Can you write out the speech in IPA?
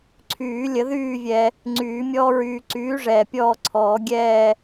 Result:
ǀʰ yː˨˩˦ lʲ ə˨˩˦ ð yː˦˨ vʲ ɛ˨ | ŋ͡ǀ yː˨˩˦ mʲ ɔː˦ ɹ yː˨ ǀ yː˩˥ ʐ ɛː˨ pʲ ɔː˦˨ ǀʰ ɔː˨˩˦ ɡʲ ɛː˦˨

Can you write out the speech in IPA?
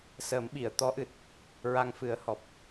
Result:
s ə˨˩˦ m ɓ i˨˩˨ ə̯ t̪ ɔ˧˥ ʔ ɨ˨˩ t̚ | ɹ a˧ ŋ f ɨ˨˩˦ ə̯ h ɔ˨˩ p̚

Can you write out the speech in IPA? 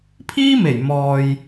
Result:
pʰ iː˥ m e˨˩ j m ɔː˨ j

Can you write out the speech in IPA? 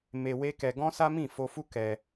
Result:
m e˧ w e˦ k ɛ˧ ɡ ɔ̃˦ s a˦ m ĩ˦˨ f o˧ f u˦ k ɛ˧

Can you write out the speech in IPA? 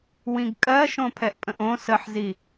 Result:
w ĩ ɡ kʼ ɜ ʃ õ pʰ ɛ ʔ pʼ ə̃ ʔ õ s ə ħ z i

